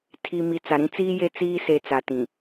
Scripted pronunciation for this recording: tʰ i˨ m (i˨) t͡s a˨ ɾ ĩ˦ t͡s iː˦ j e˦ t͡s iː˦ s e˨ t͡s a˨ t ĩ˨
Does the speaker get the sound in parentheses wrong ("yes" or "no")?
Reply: no